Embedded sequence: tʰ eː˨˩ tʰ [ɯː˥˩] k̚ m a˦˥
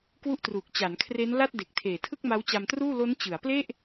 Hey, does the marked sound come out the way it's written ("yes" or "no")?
no